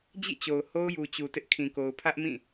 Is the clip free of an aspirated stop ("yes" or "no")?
no